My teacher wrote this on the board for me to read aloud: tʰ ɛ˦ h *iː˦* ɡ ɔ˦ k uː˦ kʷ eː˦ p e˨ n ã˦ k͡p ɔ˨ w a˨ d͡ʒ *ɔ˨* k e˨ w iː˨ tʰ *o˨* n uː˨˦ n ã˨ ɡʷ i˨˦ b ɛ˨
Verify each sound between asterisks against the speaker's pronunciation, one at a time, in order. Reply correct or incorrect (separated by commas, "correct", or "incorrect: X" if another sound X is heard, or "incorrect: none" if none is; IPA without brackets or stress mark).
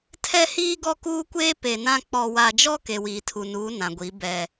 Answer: correct, incorrect: ɔ˦, incorrect: u˨